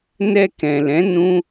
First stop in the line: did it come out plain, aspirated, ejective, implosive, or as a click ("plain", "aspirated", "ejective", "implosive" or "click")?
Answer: plain